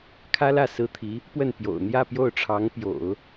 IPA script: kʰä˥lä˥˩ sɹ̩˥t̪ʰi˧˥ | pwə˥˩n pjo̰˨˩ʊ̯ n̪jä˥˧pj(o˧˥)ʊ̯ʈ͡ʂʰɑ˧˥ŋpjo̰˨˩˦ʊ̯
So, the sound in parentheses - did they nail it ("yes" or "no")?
no